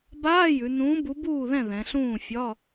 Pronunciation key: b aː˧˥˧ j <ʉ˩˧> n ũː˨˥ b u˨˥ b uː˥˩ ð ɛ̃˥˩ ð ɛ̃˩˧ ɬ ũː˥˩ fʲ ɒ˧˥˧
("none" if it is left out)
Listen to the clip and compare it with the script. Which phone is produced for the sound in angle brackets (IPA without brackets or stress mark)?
ʉ˩˧